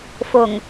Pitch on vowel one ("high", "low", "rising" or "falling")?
low